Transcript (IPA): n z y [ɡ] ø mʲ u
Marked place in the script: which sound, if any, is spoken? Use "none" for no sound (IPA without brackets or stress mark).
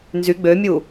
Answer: ɡ͡b